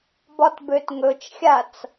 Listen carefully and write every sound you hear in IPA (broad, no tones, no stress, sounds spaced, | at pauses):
b ɒ t b ø t ŋ ɵ t͡ʃ xʲ a t͡s